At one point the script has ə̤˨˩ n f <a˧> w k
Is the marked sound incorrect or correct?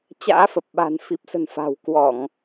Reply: incorrect